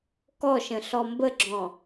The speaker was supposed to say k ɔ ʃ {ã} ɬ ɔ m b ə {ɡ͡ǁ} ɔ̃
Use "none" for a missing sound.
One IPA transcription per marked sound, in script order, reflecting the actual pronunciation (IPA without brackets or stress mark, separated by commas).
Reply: ə̃, ɡ͡ǁ